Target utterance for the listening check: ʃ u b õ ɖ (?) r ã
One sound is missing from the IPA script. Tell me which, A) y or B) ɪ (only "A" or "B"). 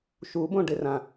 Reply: B